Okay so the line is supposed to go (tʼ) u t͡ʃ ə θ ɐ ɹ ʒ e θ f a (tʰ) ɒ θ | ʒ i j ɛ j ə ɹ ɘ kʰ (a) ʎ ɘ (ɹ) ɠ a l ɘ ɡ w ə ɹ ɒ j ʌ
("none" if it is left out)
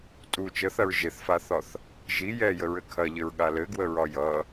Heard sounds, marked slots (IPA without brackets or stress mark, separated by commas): tʼ, θ, ɐ, ɹ